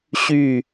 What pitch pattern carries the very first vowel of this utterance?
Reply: falling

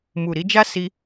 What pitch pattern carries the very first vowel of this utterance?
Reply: low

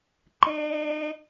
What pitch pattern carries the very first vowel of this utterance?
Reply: high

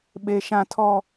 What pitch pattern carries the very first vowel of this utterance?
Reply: low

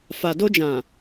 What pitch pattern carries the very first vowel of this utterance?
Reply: low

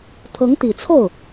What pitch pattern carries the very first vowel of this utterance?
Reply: rising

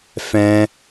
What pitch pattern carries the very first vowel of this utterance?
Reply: high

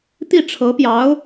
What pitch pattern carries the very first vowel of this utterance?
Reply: falling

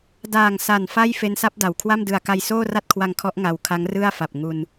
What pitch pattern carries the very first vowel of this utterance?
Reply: low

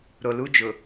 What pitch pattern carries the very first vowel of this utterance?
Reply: low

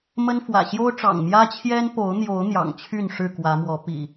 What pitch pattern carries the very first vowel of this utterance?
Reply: high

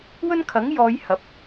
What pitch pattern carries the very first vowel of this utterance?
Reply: high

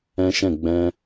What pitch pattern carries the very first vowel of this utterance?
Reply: high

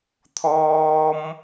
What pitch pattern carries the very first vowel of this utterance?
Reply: high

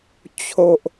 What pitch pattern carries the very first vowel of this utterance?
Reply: high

